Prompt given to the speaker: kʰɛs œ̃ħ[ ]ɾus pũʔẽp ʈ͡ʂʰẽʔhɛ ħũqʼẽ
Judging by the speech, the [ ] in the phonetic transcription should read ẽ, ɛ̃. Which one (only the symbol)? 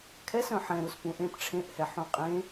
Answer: ɛ̃